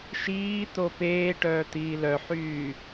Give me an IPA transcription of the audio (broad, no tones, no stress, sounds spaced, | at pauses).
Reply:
ʃ iː t̪ o p eː ʈ œː t̪ iː l œ ħ yː